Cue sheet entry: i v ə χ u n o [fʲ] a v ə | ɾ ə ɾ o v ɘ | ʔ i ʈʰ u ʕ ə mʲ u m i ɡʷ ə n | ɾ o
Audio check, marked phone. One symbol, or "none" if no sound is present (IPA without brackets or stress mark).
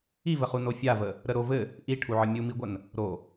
fʲ